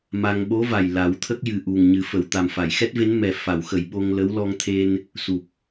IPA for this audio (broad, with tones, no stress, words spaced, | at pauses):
ma˧ŋ ɓo˧˥va˨˩j la˨˩˦wt̪ʰə˦˥k̚jɨ˨˩ ʔu˨˩ŋɲɨ˨˩˦fə˨˩˨w t̪a˨˩mfa˨˩˨jxɛ˦˥t̚ve˧˥n mɛ˨˩fa˨˩˨wxə˨˩˨j ɓo˧ŋlə˧˥w lɔ˧ŋt̪ʰe˧n | su˨˩p̚